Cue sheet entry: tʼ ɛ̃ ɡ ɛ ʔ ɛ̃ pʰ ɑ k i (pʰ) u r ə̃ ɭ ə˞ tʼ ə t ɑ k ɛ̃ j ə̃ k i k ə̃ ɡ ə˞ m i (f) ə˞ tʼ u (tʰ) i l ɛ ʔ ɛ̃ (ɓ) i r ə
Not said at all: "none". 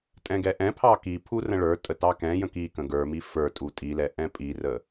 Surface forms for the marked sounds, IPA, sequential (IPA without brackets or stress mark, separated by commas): pʰ, f, tʼ, pʼ